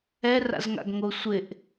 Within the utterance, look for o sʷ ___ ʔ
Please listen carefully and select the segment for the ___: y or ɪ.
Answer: ɪ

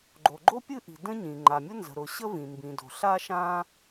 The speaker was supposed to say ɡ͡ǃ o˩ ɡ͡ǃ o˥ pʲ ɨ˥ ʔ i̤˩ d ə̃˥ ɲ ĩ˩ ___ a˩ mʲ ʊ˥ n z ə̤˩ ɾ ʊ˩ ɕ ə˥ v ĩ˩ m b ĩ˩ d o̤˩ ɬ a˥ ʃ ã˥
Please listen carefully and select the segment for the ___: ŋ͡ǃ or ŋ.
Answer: ŋ͡ǃ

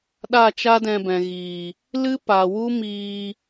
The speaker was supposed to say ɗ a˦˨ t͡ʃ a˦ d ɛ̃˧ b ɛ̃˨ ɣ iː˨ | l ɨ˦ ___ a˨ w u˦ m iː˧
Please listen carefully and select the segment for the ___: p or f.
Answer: p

